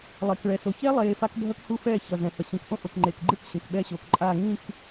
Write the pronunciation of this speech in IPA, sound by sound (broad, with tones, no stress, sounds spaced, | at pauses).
lˠ e˨ k ɭ ɛ˨ s o˨ ç ɛ˦ lˠ eː˨ f a˦ k bʱ ʌ˦ k h u˦ f ɛː˦˨ ç ʌ˨ z ɛ̃˨ h ʌ˨ ɕ ĩ˨ k ʔ õ˦ ʔ o˨ k ŋ͡ǃ eː˨ k ɡ͡ǃ ɯ˦˨ k ɕ ẽ˨ k ɓ ɛː˦ ɕ oː˨ k ǃʼ aː˦˨ ŋ ĩ˦˨ k